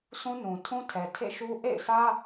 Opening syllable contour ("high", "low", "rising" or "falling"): high